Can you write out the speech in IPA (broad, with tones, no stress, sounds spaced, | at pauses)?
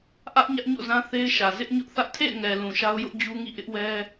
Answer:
ʔ ä˦ ʔ ɲ ä˦ ʔ ɲ o̰˦˨ z ã˦ θ e˦ ɪ̯ ʃ ä˨ z ɪ˦ ʔ ɲ ʊ˦ ʔ θ ä˦ ʔ tʰ ḛ˦˨ ɪ̯ ŋ ɛ˨ l ũ˨ ʃ a˦ ʊ̯ j ʊ˦ ʔ d͡ʑ u˦ ŋ ḭ˦˨ ʔ ɪ˦ ʔ w ɛ˦